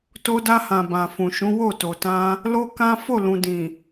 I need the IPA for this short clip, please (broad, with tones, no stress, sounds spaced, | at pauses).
t o˧ d a˧ h ã˨ b ã˨ f ũ˨ ʃ ũ˨˦ w o˦˨ t o˨ t ã˧ | l o˦ k ã˦ f o˦˨ l ũ˨ d ĩ˨